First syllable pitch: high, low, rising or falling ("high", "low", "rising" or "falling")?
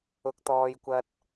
high